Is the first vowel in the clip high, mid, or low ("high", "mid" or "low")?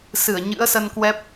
high